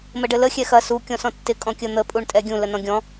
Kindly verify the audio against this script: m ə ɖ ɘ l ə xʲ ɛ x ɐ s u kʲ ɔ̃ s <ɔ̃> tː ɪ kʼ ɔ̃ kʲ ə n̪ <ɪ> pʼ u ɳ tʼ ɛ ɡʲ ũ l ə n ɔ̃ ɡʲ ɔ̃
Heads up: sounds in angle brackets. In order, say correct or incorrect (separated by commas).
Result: correct, incorrect